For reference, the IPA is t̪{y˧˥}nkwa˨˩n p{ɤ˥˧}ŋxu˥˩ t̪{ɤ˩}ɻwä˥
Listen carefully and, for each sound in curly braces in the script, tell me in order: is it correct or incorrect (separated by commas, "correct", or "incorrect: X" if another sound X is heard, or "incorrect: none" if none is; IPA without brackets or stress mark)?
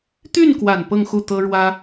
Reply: incorrect: y˥˩, correct, incorrect: ɤ˥